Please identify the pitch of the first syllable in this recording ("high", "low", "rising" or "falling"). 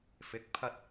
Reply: rising